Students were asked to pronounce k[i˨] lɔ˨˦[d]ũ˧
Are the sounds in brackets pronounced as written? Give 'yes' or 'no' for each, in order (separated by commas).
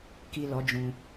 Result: yes, no